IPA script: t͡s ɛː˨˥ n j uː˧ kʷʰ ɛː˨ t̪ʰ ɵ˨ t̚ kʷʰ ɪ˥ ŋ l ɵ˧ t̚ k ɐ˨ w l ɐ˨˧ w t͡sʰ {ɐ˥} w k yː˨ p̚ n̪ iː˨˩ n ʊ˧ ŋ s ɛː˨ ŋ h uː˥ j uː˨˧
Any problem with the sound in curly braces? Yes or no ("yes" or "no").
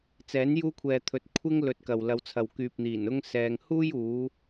yes